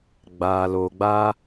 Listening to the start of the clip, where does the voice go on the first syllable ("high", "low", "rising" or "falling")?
low